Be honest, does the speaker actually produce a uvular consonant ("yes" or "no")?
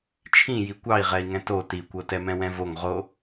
yes